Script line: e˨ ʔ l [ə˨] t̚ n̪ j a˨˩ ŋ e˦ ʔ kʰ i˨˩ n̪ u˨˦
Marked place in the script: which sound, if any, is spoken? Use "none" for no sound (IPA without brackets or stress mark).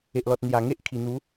ɔ˨